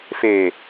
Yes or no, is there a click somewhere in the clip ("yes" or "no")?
no